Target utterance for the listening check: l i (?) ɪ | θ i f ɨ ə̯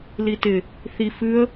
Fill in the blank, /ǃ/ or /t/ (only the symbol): t